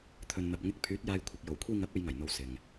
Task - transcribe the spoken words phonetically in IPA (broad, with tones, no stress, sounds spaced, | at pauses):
t̪ʰ ɵ˨ n n̪ ɐ˨ p̚ ŋ ɪ˧ k̚ pʰ yː˨˥ t̚ j aː˧ j kʷʰ ɪ˨ k̚ j o˨˩ w kʷʰ iː˧ ŋ ɐ˨˥ p̚ e˨˧ j ŋ ɐ˨˩ j n̪ o˨˧ w s ɪ˨ ŋ